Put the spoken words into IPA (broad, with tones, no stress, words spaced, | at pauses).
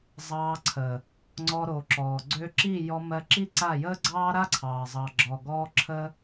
zˤɑː˧ǀʰə˨ | ŋ͡ǀɔ˧ɾo˨ ǁɔː˨ɡ͡ǀø˦ ǁi˦˨jɔ˧mɜ˧ ǁi˦ǀa˦˨ jəː˦ɡ͡ǀɑː˦ɾa˦ǀʰɑː˨ zˤɑ˨ɡ͡ǁɔː˨ɡɔː˧ ǁʰə˦